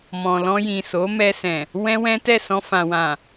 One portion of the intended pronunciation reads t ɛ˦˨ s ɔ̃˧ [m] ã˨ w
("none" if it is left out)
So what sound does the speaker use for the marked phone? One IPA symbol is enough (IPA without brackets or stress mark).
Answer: f